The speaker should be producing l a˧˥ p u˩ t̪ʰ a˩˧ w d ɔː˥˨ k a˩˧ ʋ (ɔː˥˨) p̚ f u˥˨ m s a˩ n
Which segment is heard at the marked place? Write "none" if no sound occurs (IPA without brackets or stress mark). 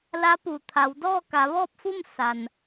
ɔː˥˨